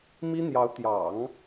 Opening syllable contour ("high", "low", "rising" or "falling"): high